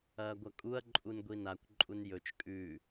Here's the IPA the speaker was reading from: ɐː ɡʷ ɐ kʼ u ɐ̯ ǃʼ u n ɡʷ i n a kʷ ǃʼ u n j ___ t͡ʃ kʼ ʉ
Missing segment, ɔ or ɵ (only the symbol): ɵ